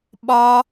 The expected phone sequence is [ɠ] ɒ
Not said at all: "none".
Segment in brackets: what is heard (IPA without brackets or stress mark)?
ɓ